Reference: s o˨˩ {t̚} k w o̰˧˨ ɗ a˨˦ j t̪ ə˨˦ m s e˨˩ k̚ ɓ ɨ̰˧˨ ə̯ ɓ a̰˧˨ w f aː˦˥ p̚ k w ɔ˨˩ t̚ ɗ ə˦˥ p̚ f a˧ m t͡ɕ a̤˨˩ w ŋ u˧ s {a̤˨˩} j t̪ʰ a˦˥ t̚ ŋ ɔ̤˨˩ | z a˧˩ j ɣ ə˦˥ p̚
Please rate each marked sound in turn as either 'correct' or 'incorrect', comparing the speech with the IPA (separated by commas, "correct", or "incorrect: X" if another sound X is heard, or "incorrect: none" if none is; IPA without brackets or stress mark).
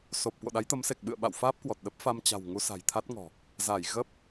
incorrect: p̚, correct